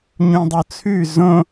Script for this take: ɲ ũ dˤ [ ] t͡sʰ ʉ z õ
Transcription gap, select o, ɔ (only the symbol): o